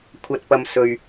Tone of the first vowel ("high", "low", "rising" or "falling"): low